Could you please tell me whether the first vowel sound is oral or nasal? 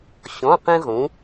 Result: nasal